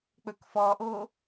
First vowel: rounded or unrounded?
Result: rounded